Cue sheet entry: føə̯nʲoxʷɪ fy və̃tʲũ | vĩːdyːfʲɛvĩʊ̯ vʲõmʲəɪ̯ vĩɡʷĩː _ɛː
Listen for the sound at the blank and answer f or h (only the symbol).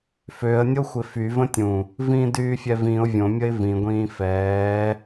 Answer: f